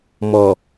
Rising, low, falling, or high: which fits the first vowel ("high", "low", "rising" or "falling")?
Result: low